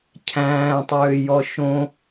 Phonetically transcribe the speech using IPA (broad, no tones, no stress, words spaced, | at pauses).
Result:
cʰæ̃ːtˤøːjɔ ʃõ